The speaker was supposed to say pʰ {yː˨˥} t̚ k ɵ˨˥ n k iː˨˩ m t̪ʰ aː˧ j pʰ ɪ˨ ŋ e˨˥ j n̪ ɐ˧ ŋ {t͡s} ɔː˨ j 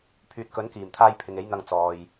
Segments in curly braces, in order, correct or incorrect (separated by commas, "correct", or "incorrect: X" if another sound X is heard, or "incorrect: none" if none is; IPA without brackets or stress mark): incorrect: yː˨, correct